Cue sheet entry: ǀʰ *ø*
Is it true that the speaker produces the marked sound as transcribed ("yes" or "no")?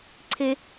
no